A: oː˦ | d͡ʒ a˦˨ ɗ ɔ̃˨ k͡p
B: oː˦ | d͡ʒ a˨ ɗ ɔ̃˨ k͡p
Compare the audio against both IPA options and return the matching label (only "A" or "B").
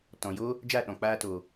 A